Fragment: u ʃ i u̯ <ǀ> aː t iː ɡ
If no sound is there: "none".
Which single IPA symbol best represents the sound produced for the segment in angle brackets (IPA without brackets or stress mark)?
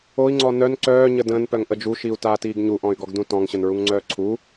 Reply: t